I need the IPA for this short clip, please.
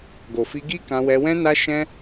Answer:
ɡ o˨ f i˧ ɡ i˦ k ã˧ w ɛ˧ w ɛ̃˦ n a˦ ʃ ɛ̃˦

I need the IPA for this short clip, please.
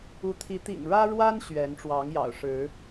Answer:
u˨˦ t̪ʰ i˨˦ t̪ ḭ˨˩ ŋ ɻ ä˦ ɻ w a˦ n ɕ ɥ ɛ˨˦ n ʈ͡ʂ w ɑ˨˦ ŋ j ɑ̰˨˩ ʊ̯ ʂ ɻ̩˨˦

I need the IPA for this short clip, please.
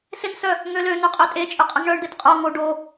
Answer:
s ɪ n s œ | ŋ ø l ø n ø qʼ ø tʼ e t͡ʃʼ ø qʼ ɛ ŋ ɳ œ ɳ d̪ e t qʼ o ŋ o ɖ o

